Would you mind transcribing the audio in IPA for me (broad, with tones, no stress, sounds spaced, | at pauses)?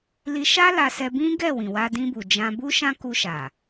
l i˧ ʃ a˦ l a˧ s ɛ˧ b ĩ˦ ɡ ɛ˦˨ w ĩ˨ w a˧ d ĩ˧ b u˨ d͡ʒ ã˧ b u˦ ʃ ã˦ k u˧ ʃ a˨